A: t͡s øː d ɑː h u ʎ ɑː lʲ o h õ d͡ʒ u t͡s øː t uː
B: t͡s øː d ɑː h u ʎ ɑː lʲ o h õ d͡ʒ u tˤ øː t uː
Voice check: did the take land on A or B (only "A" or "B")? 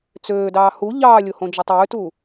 B